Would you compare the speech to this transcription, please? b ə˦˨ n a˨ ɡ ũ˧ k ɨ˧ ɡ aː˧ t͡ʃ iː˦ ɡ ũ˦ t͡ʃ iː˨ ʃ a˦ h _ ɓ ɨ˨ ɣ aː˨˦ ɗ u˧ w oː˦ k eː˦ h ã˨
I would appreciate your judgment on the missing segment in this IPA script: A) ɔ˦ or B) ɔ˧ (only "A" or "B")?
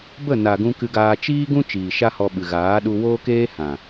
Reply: B